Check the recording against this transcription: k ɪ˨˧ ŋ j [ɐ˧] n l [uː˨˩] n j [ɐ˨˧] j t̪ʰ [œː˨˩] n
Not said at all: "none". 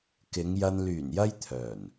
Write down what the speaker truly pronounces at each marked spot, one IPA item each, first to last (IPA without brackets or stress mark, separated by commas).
ɐ˧, yː˨˩, ɐ˧, œː˨˩